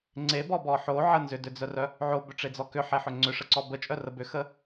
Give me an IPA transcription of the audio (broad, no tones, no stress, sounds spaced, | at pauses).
ŋ͡ǀ e b ɔ b ɔ ħ o ʕ ə n z ʏ d ʏ d͡z œ r œ | ʕ o b ʏ ʈ͡ʂ e d͡z ɔ k ʏ ħ e ħ ʏ ŋ͡ǀ ʏ ʂ ə ǀ ɔ b ə t͡ʃʼ œ r ə b ʏ x ə